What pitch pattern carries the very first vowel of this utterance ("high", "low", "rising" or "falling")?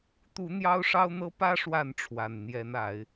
rising